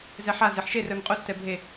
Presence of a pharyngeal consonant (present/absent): present